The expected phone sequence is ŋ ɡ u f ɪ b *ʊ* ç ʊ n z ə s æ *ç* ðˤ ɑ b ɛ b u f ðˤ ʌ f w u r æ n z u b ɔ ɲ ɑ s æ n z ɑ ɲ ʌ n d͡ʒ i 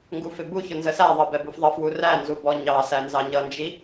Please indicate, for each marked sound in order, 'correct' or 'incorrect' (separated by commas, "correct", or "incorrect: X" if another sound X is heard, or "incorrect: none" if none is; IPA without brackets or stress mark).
incorrect: u, incorrect: none